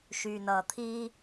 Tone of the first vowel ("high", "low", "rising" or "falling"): low